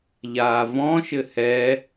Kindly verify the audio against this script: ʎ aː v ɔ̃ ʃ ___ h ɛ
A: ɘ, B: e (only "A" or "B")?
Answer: A